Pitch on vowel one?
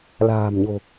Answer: low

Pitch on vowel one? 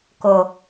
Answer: low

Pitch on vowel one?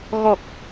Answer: low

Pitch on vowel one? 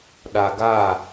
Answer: low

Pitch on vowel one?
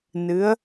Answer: rising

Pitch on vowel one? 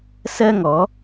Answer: high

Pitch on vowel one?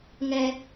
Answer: high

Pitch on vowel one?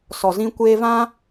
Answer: low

